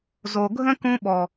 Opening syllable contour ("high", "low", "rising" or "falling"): low